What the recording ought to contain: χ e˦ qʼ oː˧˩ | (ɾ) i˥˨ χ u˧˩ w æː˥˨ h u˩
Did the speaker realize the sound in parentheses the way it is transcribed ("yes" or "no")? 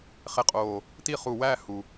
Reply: no